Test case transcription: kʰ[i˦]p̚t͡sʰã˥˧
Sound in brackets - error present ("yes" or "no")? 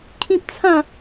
yes